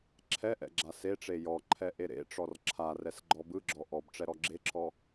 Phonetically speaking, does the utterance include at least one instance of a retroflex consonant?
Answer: yes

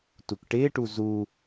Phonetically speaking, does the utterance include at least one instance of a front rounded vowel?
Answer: no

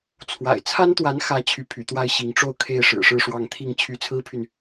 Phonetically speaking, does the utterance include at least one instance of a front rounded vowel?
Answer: yes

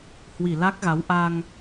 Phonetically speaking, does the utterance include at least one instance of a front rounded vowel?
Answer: no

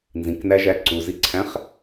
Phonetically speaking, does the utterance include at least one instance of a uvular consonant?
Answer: yes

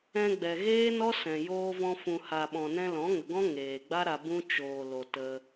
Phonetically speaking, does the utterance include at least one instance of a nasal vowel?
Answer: yes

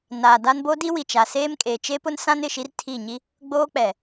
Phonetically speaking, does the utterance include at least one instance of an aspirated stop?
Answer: yes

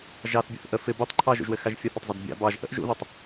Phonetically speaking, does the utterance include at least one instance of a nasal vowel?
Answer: no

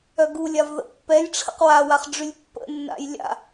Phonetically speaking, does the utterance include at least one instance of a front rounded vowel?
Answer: yes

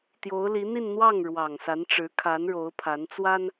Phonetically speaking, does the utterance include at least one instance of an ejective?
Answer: no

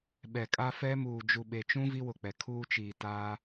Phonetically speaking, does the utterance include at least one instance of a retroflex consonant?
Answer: no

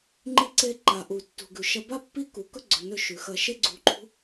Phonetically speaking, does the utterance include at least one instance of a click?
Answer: yes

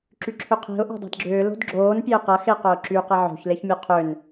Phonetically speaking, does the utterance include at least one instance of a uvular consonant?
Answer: yes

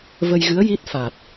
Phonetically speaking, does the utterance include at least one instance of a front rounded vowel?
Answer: no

